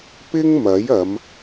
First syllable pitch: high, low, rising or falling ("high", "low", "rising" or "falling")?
high